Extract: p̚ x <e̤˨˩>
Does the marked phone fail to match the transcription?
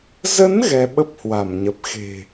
no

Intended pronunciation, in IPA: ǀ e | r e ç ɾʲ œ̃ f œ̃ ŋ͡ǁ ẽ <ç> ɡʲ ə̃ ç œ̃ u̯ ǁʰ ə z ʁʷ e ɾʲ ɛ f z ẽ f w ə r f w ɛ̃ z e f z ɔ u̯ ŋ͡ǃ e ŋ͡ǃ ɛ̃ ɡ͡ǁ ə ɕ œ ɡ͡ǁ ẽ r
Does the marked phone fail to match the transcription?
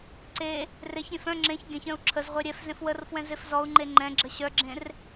no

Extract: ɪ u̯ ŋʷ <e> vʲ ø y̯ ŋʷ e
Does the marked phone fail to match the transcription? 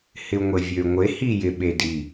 no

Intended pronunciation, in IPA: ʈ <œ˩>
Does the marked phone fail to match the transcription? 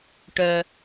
no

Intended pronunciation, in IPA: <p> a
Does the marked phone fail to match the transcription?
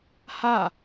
yes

